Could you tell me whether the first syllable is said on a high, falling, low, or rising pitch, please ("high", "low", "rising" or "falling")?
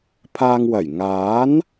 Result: low